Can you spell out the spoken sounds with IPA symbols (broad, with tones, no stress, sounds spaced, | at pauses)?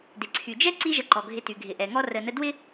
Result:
d ɪ˩ ǀʰ y˩ d͡ʒ ɛ˥ ǀ i˦ ʒ ə˨ ǃ ɔ˩ ɡʱ ɪ˨ t y˩ ɡʱ ɪ˨ ʔ ɛ˨ ŋ ɔ˥ r ə˨ n ə˦ d w ɪ˥